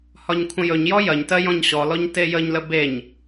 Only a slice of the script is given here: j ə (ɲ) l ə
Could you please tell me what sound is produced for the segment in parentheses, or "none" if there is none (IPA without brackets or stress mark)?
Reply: ɲ